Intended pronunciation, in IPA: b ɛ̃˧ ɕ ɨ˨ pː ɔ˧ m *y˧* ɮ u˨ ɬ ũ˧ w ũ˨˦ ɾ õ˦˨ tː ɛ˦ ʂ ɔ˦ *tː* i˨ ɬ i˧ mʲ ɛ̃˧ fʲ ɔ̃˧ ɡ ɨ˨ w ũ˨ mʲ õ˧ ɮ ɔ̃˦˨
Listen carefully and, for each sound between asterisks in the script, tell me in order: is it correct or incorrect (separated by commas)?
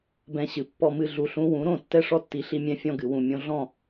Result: incorrect, correct